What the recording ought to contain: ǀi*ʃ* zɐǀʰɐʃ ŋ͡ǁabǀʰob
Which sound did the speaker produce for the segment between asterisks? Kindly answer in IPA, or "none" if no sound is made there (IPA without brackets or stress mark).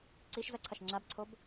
ʃ